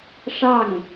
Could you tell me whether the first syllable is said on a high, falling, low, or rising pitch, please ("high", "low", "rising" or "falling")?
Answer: falling